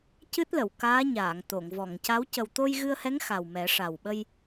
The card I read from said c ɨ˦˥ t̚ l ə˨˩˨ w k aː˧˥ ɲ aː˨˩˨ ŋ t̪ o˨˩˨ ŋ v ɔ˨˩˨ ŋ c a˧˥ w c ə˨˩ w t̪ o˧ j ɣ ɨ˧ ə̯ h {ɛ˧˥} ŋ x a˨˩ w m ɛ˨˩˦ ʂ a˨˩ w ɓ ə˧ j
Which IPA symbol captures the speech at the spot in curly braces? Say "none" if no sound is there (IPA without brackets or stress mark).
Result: ɛ˧˥